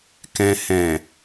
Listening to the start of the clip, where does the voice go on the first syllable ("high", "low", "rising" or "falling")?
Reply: low